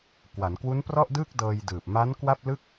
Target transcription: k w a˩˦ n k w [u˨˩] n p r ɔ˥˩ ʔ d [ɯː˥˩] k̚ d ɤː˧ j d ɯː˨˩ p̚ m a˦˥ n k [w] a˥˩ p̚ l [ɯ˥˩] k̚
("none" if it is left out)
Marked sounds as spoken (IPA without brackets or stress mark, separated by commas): u˦˥, ɯː˥˩, w, ɯ˥˩